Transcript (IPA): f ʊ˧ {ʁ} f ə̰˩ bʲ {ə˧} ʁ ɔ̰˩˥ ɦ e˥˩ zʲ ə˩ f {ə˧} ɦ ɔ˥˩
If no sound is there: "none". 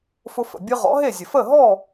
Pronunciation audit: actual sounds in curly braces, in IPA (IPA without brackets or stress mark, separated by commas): none, ɯ˧, ə˥˩